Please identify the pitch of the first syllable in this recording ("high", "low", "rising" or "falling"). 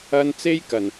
high